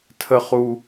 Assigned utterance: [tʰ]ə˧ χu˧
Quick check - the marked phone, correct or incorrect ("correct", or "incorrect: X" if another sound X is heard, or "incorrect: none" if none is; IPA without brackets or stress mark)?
correct